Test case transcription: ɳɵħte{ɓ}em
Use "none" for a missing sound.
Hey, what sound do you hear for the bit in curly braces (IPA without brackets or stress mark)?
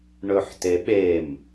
ɓ